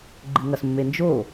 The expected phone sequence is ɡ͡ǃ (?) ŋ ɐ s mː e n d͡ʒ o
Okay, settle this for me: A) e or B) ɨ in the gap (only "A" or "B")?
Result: B